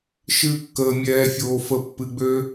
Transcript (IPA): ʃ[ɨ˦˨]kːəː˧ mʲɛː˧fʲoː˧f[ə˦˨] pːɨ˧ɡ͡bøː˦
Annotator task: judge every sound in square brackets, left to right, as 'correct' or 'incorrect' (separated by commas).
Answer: correct, correct